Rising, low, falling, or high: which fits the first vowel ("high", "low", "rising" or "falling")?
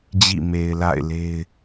falling